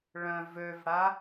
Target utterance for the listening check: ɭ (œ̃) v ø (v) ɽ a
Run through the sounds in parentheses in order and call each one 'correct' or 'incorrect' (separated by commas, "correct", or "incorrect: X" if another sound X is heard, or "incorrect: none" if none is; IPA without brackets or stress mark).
correct, correct